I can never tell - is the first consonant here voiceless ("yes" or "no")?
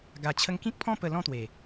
no